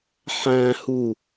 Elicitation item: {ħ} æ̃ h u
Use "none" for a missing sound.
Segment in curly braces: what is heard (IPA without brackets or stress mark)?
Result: ħ